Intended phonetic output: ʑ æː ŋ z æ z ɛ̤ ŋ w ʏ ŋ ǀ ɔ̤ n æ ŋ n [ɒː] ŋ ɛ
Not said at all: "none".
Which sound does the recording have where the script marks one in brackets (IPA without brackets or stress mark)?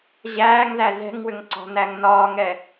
ɒː